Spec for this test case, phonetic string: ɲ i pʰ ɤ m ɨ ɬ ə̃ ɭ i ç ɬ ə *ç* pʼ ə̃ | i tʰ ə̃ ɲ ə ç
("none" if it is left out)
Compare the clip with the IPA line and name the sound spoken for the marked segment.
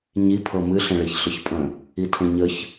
ç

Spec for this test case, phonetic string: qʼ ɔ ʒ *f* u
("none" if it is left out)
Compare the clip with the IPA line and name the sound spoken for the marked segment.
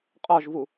v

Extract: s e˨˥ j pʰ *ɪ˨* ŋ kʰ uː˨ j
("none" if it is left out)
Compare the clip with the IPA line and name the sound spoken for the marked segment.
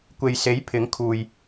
ɪ˨˥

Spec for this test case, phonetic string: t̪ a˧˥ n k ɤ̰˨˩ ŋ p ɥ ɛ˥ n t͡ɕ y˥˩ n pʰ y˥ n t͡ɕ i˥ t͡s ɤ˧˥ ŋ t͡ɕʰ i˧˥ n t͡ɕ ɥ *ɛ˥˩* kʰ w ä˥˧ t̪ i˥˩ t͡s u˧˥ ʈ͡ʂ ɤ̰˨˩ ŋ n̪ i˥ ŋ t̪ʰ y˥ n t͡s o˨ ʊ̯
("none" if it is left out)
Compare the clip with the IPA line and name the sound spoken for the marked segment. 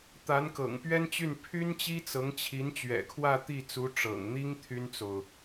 ɛ̰˨˩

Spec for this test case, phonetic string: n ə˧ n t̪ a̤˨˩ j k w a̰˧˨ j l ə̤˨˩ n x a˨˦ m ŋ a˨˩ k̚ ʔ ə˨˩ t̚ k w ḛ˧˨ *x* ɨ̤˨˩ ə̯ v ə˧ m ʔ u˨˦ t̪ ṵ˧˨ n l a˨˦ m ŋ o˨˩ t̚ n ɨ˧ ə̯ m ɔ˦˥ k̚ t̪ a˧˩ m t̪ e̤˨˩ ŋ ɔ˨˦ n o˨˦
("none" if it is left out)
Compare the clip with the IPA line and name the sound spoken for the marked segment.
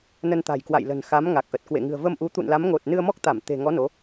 ŋ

